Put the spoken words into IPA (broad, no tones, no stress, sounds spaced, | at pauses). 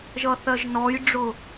ʒ ʌ θ ɜ ʒ n ɔ j ɖ͡ʐ ʊ